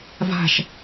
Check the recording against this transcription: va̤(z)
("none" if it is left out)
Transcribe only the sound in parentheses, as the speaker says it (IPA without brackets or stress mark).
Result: ʃ